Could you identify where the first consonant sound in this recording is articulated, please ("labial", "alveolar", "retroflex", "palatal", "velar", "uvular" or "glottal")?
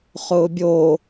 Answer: uvular